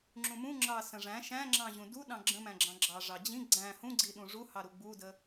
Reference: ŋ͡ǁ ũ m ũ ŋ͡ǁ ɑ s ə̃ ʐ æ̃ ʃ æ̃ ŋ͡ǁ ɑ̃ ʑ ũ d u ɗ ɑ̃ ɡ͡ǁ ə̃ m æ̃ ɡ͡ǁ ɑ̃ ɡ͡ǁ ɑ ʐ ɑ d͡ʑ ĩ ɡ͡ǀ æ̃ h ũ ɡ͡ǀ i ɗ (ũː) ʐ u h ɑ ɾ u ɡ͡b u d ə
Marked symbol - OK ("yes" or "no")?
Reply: no